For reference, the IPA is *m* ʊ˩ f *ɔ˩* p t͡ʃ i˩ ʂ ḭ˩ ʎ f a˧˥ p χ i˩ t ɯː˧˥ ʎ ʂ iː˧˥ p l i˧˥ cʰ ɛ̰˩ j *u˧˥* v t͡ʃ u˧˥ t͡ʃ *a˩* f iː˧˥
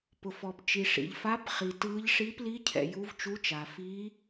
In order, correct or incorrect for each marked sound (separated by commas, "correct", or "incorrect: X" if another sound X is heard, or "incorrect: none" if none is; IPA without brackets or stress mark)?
incorrect: p, correct, correct, correct